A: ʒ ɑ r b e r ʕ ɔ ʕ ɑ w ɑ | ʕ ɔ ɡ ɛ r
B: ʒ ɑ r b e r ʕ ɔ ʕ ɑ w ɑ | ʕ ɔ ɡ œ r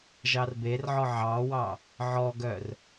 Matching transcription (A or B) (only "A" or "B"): B